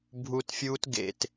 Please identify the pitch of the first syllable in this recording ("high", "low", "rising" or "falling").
low